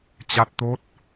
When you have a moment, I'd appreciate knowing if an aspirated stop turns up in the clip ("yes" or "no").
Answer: no